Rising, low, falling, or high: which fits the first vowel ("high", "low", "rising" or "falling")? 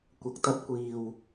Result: low